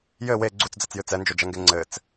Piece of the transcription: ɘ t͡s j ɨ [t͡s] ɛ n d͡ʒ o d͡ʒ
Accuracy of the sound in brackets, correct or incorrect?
correct